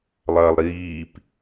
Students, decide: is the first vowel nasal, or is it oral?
oral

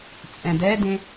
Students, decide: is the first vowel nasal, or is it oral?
nasal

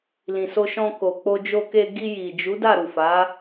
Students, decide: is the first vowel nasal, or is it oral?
nasal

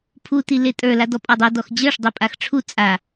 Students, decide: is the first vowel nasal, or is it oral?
oral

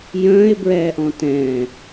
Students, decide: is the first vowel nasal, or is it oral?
nasal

